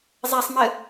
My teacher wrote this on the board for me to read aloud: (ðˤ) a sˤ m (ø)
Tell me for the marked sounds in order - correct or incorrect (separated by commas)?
incorrect, incorrect